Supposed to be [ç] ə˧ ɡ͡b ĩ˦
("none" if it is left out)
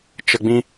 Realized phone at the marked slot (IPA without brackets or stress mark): t͡ʃ